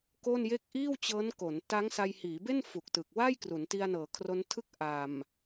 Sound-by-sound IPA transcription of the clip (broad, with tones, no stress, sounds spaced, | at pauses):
k o˥˩ n j e˥˩ k̚ ʔ iː˥˩ w t͡ɕ ɤː˦˥ n k o˩˦ n t a˦˥ ŋ s a˧ j h iː˩˦ b e˥˩ n f u˨˩ k̚ t ɯ˨˩ k̚ w a˥˩ j k r u˩˦ n t i˧ a̯ n ɤː˩˦ kʰ r o˦˥ n tʰ ɯ˥˩ k̚ ʔ a˨˩ m